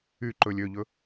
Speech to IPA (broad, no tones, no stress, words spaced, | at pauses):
y ǃɵlʲ øʎɵ